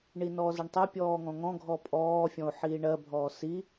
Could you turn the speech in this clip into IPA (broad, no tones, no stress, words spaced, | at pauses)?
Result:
ɳinɔːzəɳtˤɛ pʲɔːŋɔ̃ŋɔ̃ ɡʱɔpʼɔː fʲɔ̃o̯ħiːɳɜ bʱɔːsi